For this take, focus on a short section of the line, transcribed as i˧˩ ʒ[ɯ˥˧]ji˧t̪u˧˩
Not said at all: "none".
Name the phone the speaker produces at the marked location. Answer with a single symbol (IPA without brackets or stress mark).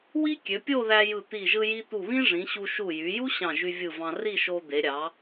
ɯ˧